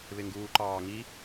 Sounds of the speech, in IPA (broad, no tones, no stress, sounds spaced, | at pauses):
β ɪ ŋ ɡ uː ǃ ɑː ŋ i